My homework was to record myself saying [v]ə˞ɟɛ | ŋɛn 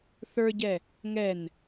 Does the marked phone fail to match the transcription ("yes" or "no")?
yes